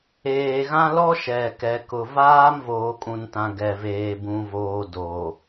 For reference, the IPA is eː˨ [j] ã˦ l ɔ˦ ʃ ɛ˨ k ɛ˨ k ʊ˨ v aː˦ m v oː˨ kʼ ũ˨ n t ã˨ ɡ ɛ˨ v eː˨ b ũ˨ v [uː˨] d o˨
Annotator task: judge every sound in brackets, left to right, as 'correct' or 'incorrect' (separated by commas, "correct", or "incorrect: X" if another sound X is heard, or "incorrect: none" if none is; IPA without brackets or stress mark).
incorrect: ɣ, incorrect: oː˨